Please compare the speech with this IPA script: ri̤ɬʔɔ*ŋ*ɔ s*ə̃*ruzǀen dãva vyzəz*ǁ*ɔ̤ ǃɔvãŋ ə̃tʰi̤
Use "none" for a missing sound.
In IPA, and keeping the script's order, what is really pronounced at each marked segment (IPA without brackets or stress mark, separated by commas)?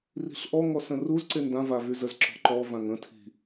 ŋ, ə̃, ǁ